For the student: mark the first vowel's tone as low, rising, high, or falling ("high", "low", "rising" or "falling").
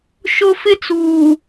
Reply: high